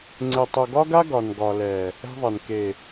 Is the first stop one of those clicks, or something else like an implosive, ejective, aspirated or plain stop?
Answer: click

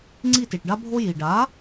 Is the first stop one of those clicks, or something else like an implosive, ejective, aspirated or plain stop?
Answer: click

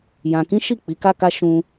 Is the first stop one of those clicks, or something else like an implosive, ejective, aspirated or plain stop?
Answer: plain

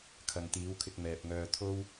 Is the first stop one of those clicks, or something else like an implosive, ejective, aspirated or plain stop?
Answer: aspirated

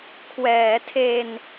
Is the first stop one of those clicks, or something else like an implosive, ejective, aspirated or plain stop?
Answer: aspirated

